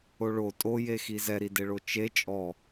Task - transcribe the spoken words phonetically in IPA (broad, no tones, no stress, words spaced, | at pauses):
oɭo tʼojexi zɛɾideɭo t͡ʃe t͡ʃʼɔ